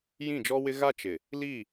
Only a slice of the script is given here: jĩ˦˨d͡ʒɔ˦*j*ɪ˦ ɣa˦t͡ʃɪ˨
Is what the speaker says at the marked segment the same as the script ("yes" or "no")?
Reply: no